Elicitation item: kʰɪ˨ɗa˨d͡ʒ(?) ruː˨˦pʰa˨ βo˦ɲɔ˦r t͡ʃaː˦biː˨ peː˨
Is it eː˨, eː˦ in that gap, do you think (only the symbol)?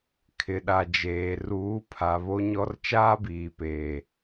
eː˨